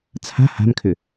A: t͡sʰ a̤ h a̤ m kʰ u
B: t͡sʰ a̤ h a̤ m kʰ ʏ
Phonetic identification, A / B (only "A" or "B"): B